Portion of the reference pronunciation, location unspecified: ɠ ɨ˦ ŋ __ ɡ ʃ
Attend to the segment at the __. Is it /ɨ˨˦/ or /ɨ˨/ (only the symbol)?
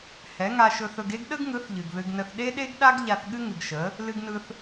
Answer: ɨ˨